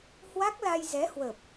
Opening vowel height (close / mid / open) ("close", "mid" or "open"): open